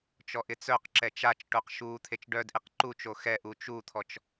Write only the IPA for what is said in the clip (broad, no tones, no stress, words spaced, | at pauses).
t͡ʃɔʔɪt͡sœqǁɛ t͡ʃat͡ʃʈoq ʃu t̪ʰet͡ʃɖœdʔeq ǃut͡ʃo xɛʔu t͡ʃut̪ʰɔt͡ʃ